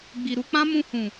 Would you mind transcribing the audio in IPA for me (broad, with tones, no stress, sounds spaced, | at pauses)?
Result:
ɡ͡b i˨ ɾ u˧ k͡p ã˦ m ũ˧ h ũ˨